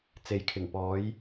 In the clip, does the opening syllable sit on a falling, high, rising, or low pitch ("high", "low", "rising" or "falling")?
low